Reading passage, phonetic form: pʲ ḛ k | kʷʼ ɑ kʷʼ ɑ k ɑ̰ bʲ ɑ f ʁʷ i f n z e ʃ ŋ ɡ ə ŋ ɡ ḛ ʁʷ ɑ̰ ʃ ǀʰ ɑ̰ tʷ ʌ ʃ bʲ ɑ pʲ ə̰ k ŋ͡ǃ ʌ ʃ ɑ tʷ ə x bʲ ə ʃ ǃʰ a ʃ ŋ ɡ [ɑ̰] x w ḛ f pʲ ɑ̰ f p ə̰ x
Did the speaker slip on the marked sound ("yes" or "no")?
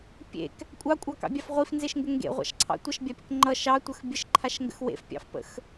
yes